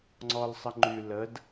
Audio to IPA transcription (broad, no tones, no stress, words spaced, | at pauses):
ŋ͡ǀɔlsˤəŋ͡ǃy ləd